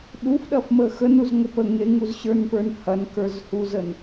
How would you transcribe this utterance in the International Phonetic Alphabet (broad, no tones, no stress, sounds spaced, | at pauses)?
ɗ u f ɗ ɐ f m ə x ə n u z ŋʷ ə p ə ŋ e ŋ u z ɕ ə˞ n p ə˞ n h ɐ n k ə˞ z h u z ə n